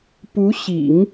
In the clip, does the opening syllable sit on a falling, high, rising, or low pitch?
rising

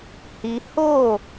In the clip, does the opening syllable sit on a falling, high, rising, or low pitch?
high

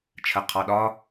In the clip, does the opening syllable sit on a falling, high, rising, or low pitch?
low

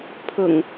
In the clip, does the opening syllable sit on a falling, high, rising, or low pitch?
low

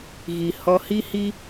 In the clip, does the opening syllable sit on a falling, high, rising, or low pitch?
low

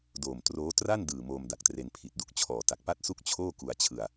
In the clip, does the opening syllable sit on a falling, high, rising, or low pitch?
low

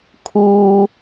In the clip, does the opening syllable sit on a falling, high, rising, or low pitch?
low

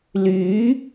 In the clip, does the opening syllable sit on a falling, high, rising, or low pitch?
rising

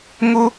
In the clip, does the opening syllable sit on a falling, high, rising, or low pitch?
high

